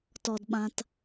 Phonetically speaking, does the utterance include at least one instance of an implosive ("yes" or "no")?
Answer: yes